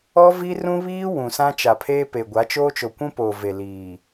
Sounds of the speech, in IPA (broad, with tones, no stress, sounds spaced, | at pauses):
ɔ˦ v i˦ r ũ˦ β iː˦ w ũ˨ s ã˦ t͡ʃ a˨ pʰ eː˦ p e˨ ɡʷ a˨˦ t͡ʃ oː˦ t͡ʃ o˨ kʷ ũ˦ p oː˨ v e˨ l iː˨